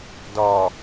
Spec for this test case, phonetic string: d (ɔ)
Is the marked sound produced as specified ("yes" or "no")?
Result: yes